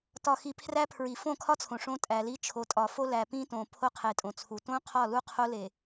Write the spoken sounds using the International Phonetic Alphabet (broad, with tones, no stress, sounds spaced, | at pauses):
t ɒ˨ x i˨ pʰ r æ˦ pʰ ɹ i˨ f õ˦˨ kʰ ɒ˦ t͡sʰ õ˨ ʂ õ˦ tʼ æ˨ l i˦ t͡ʃʰ o˨ tʼ ɒ˨ f o˦ l æ˨ p ĩ˦ t õ˨ pʰ o˦ qʰ e˨ tʼ õ˨ t͡sʰ u˨ t õ˦ qʰ ɒ˦˨ l u˦ qʰ o˦ l e˨